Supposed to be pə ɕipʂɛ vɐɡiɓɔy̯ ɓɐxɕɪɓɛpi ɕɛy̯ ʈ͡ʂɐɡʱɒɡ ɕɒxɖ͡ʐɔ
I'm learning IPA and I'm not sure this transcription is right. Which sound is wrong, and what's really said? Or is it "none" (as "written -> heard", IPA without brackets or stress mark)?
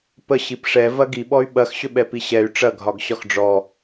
ɪ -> ʏ